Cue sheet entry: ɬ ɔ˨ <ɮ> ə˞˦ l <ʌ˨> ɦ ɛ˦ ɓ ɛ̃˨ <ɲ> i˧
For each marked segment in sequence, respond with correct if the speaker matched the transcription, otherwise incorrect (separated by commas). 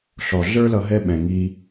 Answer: correct, incorrect, incorrect